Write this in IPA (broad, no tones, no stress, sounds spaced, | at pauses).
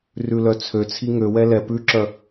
r ʉ l œ t͡sʰ ø t͡sʰ i ŋ ø w ɛ l ɛ p ʉ ǁ œ